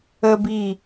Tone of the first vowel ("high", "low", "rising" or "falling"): high